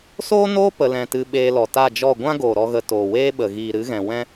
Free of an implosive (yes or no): no